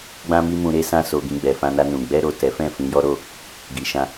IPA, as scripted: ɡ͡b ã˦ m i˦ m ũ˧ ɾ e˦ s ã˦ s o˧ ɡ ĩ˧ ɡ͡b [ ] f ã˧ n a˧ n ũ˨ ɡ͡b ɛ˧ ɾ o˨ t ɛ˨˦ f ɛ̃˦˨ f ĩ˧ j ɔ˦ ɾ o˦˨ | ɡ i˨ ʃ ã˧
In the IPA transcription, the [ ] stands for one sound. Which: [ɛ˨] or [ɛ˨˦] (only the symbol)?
ɛ˨